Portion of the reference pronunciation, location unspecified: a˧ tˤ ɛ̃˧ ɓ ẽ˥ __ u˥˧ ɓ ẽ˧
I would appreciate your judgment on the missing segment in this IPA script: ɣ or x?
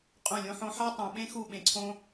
x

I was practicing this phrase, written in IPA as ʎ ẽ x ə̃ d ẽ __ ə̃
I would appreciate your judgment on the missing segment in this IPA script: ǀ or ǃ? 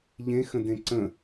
ǀ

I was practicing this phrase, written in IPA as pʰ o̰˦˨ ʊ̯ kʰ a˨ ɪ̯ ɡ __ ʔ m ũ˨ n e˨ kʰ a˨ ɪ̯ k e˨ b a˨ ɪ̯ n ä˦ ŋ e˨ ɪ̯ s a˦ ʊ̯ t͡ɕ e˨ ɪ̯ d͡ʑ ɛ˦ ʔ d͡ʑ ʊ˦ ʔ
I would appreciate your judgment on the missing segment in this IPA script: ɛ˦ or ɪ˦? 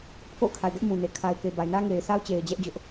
ɛ˦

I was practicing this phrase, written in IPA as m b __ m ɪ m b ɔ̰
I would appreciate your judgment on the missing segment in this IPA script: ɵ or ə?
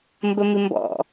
ə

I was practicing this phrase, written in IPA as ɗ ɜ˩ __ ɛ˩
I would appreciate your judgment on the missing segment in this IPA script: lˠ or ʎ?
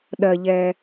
ʎ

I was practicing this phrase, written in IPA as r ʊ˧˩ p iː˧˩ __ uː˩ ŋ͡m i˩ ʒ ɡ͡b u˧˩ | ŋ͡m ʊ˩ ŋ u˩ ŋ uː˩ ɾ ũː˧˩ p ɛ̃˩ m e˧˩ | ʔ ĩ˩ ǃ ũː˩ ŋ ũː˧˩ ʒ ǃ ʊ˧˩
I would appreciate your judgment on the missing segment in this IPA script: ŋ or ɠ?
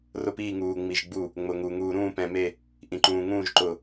ŋ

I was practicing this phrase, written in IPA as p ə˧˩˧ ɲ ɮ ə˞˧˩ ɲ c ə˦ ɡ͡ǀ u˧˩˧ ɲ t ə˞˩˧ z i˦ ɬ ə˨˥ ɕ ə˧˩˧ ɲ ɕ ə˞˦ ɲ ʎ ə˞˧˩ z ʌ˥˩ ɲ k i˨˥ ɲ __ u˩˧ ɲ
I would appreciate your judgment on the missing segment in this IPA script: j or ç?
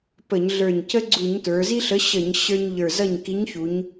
ç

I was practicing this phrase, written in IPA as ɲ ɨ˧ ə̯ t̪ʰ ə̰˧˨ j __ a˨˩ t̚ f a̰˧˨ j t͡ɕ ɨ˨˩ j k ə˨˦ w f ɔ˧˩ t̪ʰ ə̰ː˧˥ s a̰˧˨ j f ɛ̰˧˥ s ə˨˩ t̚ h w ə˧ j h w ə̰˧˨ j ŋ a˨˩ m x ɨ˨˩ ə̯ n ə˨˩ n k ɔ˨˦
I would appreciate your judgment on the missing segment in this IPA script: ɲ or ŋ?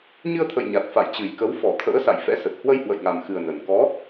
ɲ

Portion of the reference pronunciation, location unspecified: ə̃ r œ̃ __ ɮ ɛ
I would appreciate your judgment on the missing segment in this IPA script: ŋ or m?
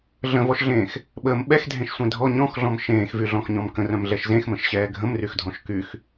m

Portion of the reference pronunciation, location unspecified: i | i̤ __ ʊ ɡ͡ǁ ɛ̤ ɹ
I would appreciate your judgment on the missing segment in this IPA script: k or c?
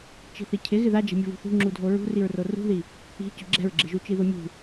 c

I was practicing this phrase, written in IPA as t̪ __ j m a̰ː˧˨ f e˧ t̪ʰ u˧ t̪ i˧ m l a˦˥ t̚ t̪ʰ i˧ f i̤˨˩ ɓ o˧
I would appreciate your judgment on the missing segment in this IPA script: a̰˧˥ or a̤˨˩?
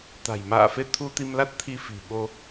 a̤˨˩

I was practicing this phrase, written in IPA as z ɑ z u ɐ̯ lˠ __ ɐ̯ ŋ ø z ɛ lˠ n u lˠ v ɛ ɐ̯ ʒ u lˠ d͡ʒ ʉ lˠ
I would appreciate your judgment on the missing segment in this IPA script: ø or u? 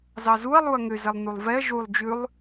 u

